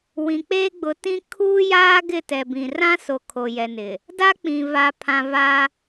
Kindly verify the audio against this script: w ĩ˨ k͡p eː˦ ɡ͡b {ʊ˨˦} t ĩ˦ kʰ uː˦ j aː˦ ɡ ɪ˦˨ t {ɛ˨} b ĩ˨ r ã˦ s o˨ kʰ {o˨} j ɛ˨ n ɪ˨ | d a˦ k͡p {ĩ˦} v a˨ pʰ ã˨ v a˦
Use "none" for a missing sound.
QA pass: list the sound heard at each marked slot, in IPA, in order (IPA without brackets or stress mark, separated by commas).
ʊ˨˦, ɛ˨, o˨, ĩ˨